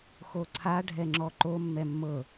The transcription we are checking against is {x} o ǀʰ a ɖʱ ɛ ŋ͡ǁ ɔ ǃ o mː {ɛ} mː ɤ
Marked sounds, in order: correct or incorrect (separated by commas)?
correct, correct